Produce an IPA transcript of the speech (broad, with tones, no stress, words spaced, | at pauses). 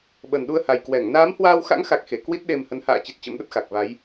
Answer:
ɓə˨˩nɗu˧ə̯ha˨˩j kwɛ˧˩ŋ naː˨˦mhwaː˧wxa̰˧˥ŋxa˨˩k̚ xe˨˩kwi˦˥t̚ɗe˧mhə˨˦n ha̰ː˧˨t͡ɕi˨˩t̚ t͡ɕə̰˧˥mɗə˦˥t̚xa˨˩k̚va˨˦j